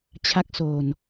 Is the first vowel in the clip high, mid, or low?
low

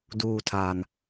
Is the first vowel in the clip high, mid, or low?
high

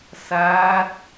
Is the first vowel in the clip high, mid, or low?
low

